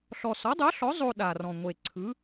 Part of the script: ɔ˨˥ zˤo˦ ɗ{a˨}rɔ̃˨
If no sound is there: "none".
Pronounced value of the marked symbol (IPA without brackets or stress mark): a˨